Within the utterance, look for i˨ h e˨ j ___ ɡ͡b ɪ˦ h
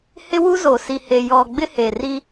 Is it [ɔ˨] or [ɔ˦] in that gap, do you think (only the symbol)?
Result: ɔ˨